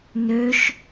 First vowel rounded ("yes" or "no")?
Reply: yes